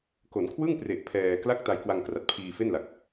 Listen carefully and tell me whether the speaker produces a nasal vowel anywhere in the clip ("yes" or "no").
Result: no